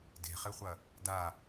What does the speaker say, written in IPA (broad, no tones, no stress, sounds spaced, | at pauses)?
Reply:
d e̤ χ e χʷ ɐ | d a